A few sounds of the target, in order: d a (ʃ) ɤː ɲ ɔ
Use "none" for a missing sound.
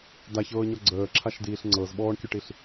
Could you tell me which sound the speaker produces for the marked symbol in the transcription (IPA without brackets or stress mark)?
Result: ç